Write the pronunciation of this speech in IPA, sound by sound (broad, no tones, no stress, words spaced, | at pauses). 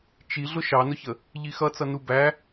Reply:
t͡ʃi ɮʊʃɑnʊçə | ʎixʌt͡sʌnu bæ